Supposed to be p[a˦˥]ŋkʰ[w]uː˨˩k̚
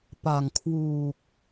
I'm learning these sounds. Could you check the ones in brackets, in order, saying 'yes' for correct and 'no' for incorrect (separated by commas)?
no, yes